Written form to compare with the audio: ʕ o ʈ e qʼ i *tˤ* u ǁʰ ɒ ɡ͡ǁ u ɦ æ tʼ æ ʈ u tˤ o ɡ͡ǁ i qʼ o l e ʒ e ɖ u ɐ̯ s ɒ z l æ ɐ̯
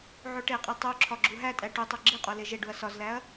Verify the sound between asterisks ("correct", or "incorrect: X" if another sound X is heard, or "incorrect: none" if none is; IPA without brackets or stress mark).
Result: correct